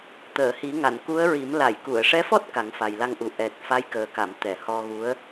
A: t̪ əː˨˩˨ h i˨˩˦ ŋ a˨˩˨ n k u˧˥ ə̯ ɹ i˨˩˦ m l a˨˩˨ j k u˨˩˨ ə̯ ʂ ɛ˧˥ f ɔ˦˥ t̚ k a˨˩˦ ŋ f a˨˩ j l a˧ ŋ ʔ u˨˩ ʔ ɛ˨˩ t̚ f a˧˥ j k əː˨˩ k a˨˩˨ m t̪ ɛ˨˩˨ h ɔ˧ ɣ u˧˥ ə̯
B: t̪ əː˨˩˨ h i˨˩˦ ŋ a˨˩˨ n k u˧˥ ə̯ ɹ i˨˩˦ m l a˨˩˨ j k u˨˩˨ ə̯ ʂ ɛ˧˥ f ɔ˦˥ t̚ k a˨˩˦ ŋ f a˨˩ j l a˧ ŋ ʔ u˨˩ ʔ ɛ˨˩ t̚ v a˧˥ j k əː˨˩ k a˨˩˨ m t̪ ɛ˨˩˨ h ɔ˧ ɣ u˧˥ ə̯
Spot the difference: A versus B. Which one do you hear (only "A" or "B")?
A